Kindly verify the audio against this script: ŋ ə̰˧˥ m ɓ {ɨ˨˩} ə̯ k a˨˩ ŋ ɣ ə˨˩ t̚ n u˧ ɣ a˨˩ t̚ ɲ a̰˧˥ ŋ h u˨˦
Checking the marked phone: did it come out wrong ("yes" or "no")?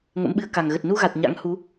yes